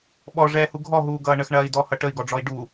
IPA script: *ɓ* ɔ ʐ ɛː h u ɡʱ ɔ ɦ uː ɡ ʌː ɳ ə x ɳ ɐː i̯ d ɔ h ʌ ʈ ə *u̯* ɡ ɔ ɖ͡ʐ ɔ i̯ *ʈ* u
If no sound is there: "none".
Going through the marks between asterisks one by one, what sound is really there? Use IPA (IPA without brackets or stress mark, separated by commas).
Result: ɓ, i̯, ɖ